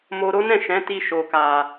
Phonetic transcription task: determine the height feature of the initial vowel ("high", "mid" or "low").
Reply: mid